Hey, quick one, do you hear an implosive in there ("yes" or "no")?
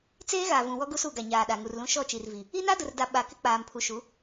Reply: yes